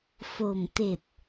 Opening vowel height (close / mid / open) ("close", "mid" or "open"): mid